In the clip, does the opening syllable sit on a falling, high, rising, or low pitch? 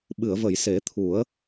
low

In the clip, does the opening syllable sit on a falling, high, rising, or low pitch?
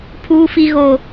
high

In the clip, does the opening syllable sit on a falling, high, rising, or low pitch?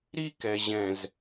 high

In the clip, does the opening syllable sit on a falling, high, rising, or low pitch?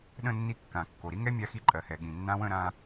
falling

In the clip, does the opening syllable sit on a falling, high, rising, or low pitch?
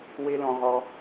high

